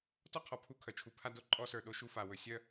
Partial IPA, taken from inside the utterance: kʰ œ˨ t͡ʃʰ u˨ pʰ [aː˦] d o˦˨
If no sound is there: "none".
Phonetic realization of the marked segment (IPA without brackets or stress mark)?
a˦